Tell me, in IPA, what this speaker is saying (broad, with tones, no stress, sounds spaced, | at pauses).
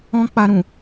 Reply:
ɔ̃˦ k͡p a˧ ɾ ũ˨